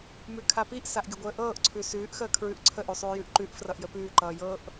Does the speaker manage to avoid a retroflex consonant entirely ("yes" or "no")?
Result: yes